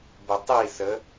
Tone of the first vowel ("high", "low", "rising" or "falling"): low